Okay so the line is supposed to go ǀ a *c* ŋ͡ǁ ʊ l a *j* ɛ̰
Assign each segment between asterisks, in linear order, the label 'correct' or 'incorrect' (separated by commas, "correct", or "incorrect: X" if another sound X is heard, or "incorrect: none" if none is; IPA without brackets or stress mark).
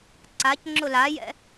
correct, correct